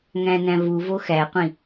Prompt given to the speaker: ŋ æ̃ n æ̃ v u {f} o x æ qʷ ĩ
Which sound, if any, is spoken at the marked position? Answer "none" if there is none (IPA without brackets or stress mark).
v